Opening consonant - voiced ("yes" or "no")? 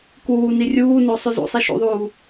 no